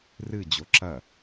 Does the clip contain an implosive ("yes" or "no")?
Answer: no